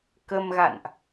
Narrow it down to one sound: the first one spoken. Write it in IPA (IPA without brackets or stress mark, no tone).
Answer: k